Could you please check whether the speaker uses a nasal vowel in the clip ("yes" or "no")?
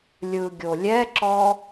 no